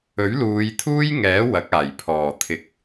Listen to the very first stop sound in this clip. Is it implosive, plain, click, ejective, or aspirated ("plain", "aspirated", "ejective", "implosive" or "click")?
aspirated